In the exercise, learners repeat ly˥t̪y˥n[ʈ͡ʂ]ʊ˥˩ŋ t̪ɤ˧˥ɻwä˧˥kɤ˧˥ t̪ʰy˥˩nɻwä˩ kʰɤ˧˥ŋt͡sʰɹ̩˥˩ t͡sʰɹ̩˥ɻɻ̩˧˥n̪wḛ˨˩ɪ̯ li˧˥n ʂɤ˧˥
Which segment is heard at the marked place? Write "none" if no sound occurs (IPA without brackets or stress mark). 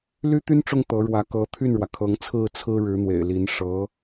ʈ͡ʂ